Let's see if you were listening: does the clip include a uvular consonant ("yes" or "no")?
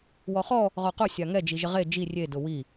yes